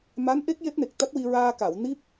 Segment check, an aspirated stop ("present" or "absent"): absent